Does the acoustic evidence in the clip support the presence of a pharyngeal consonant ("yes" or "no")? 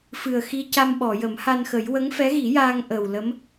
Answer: no